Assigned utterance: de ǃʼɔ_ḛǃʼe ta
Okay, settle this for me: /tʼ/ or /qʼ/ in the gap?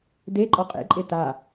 qʼ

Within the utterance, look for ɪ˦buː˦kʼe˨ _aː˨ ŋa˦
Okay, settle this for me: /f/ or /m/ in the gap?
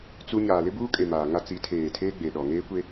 m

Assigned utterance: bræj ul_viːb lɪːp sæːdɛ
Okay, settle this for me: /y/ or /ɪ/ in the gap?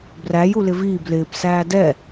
ɪ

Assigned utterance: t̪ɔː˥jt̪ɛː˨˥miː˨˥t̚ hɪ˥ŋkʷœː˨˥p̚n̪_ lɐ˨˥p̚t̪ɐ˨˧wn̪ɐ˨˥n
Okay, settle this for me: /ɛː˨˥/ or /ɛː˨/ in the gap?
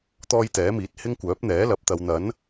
ɛː˨˥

